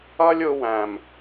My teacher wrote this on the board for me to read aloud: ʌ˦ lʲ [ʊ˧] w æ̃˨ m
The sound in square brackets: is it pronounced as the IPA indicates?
yes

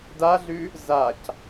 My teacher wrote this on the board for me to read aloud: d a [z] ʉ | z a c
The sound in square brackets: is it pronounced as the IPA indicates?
no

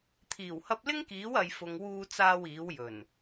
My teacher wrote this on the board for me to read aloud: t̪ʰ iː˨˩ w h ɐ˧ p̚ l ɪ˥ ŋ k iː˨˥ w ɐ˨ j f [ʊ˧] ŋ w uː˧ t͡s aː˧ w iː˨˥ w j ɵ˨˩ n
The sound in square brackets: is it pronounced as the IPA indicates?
no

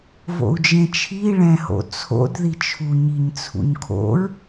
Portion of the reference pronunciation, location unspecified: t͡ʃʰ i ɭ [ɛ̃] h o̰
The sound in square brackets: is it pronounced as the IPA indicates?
yes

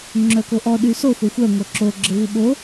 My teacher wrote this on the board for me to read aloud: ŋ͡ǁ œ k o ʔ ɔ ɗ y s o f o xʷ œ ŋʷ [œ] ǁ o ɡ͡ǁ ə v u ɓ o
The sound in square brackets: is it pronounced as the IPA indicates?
yes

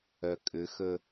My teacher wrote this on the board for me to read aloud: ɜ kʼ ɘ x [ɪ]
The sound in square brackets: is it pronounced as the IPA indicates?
no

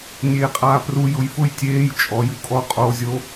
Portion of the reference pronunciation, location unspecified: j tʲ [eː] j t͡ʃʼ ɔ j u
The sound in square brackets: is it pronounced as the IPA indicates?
yes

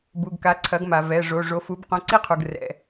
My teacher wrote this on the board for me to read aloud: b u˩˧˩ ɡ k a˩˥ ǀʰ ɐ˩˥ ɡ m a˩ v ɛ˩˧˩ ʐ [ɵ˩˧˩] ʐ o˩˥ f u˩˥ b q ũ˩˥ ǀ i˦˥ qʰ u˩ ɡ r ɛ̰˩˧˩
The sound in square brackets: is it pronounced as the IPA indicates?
no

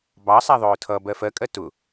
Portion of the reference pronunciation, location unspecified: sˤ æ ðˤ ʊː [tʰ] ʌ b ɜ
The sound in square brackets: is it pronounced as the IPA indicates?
yes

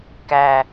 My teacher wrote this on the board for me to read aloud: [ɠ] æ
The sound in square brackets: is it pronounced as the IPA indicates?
no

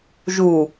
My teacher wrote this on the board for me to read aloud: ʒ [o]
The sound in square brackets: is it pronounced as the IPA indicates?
no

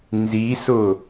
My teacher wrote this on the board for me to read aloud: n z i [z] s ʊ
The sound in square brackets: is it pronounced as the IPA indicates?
no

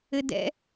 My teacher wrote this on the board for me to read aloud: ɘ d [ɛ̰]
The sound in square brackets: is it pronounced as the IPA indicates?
yes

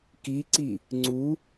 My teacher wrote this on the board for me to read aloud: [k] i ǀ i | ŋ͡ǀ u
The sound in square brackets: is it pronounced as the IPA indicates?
yes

